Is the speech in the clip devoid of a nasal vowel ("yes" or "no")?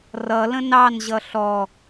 no